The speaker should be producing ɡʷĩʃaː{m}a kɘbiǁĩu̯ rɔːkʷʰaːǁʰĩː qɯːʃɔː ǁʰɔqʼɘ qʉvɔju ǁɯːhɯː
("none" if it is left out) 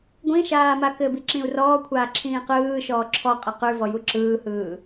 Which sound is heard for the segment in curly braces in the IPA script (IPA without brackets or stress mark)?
m